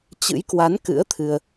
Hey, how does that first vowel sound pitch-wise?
rising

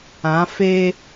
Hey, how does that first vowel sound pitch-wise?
rising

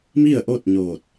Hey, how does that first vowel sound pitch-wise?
falling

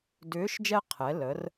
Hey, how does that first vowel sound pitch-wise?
rising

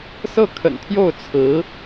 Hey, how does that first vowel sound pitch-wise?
falling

